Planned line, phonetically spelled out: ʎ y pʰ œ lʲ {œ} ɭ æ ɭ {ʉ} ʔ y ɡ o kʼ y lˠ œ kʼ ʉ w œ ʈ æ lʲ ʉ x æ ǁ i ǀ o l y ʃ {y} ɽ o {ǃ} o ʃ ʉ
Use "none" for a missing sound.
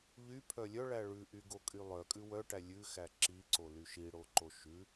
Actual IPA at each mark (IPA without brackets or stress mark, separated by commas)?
œ, ʉ, i, ǃ